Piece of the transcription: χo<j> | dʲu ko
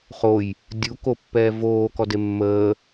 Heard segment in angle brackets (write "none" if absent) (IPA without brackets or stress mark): j